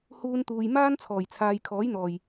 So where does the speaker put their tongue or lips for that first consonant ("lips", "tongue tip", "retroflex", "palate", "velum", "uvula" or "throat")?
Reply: throat